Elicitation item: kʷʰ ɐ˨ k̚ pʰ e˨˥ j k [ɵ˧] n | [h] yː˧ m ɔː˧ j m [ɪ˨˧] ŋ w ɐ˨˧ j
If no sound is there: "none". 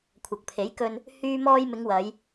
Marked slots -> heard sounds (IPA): ɵ˧, h, ɪ˨˧

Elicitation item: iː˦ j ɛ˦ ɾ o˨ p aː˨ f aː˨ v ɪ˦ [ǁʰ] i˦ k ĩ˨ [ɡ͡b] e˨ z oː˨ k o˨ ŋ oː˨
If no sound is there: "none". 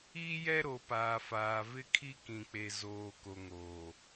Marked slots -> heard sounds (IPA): kʰ, k͡p

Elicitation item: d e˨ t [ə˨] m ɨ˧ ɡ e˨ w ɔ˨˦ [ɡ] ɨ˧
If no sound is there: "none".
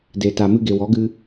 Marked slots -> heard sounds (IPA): a˨, ɡ

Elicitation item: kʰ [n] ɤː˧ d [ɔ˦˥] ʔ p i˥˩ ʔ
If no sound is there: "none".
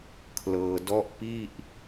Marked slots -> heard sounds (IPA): l, ɔ˦˥

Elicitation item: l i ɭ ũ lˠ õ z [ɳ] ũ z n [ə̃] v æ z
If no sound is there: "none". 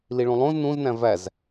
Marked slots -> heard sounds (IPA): n, æ̃

